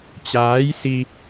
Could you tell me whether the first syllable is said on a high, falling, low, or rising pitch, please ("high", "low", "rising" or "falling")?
rising